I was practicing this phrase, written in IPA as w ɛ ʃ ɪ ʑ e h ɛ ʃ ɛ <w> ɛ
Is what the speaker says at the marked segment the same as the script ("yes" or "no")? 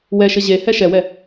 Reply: yes